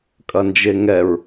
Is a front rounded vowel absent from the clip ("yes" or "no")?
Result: yes